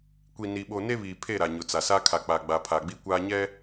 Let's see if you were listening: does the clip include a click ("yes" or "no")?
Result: no